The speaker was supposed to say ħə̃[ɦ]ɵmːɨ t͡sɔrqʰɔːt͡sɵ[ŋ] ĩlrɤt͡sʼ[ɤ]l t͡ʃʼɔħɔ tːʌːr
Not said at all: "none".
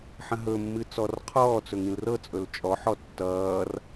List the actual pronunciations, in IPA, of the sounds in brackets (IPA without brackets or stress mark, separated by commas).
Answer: ɦ, ŋ, ɵ